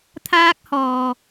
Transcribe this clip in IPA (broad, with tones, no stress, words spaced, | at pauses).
t̪ʰaː˥k̚hɔː˨